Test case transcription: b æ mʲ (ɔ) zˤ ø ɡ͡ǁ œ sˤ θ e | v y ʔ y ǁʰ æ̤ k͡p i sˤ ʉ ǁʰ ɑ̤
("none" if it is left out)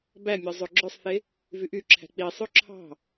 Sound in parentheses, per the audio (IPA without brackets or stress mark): ɔ